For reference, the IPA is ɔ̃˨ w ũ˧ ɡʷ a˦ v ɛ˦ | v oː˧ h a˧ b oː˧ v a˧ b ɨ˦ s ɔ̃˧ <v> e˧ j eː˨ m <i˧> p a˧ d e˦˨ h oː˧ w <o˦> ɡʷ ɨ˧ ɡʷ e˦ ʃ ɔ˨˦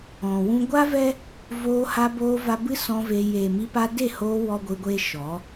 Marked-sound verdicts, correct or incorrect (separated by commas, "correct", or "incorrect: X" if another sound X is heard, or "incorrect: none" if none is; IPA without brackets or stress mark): correct, correct, incorrect: ɔ˦